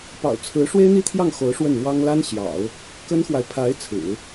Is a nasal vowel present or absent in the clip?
absent